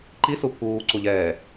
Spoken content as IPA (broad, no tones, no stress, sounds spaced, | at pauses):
ǃ i s u pʰ uː ǀ u ʎ ɛː